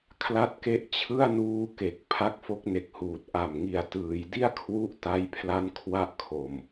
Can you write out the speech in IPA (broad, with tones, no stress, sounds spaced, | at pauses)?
kʰ l a˦˥ t̚ k e˦˥ ʔ t͡ɕʰ ɯ˥˩ a̯ n uː˦˥ k e˨˩ k̚ pʰ a˦˥ k̚ f o˦˥ k̚ n e˨˩ k̚ h uː˨˩ t̚ ʔ a˨˩ m ŋ i˨˩ a̯ t ɯː˩˦ j d i˥˩ a̯ kʰ w u˦˥ ʔ t a˦˥ j pʰ l a˦˥ n kʰ w a˥˩ ʔ kʰ o˨˩ m